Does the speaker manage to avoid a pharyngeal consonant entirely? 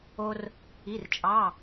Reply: yes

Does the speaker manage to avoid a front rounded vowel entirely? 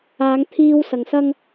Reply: yes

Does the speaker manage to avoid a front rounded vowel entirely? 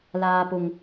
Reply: yes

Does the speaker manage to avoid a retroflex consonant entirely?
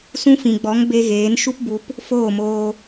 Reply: yes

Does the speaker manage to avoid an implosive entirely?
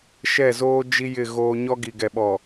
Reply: no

